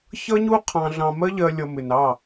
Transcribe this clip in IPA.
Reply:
çʌ˦ɲu˦ qʰɑ̃˧ɮɑ̃˧ mɜ˦ʎɜ˧ lʲʌ˧ mɪ˨nɑ˦˨

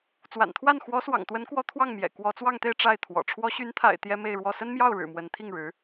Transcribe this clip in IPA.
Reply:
t͡swa̰˨˩nt̪ʰwa˥˩n xwɔ˧˥swɑ̰˨˩ŋt̪wə˧˥nkwɔ˧˥ t̪ʰwɑ˥˩ŋmjɛ̰˨˩ kwɔ˧˥t͡swɑ˥˧ŋt̪e˥˧ɪ̯ ʈ͡ʂa˥˩ɪ̯t̪ʰwɔ̰˨˩ ʈ͡ʂʰwɔ˧˥ɕy˧˥nt̪ʰa̰˨˩ɪ̯ t̪jɛ˥me˥˧ɪ̯ɻwɔ˥˩ sə˥nmjɑ˥˩ʊ̯ɻɻ̩˨˩ mwə˧˥n t̪ʰi˥˩ŋɻɻ̩˧˥

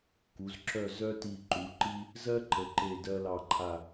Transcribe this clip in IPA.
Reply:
ku˩˧z ǁœ˥˧ zœ˥ti˧˩ǃu˩˧ǃi˥ | zɜ˥ǃə˩˧ǃe˧˩ dɜ˧lɑ˧˩ǃʰa˧˩

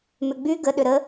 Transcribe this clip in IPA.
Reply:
mʏɡ͡by ɡə ɗʏɾə

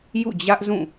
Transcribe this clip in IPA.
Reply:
jṵ˦˨d͡ʑä˦ʔzũ˦˨

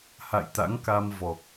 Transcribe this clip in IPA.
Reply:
ha̰˧˨jt̪a̰˧˥ŋka˧m vɔ˨˩k̚

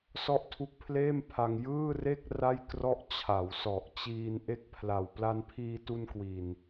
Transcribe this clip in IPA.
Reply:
sɔ˥˩ʔtʰu˦˥k̚pʰleː˥˩m pʰa˧ŋjɯː˥˩re˥˩k̚ ra˥˩j krɔ˦˥ʔt͡ɕʰa˩˦wsɔ˨˩ʔt͡ɕiː˧n ʔe˦˥k̚pʰla˨˩w pla˧npʰiː˧tu˧n kwi˨˩n

